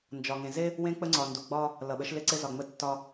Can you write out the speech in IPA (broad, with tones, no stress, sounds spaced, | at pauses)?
n d͡ʒ ɒ˨ ŋ ẽ˨ z e˦ | w ẽ˦ k͡p ə˦ ŋ͡ǀ ɒ˨ n d u˨ ɡ͡b ɒ˦ | l ʌ˨ ɓ ə˨˦ ʃ l ɪ˦ ǀ ɪ˦ z ɒ˨ ŋ͡m ə˦ tː ɒ˦